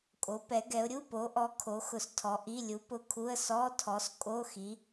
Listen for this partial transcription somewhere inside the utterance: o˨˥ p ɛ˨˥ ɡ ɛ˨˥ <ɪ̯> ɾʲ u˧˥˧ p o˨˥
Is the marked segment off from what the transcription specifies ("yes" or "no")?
yes